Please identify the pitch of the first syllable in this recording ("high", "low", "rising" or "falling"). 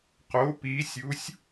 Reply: rising